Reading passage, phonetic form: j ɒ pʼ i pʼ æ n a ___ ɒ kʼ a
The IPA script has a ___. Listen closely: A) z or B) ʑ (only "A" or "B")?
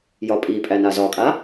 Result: A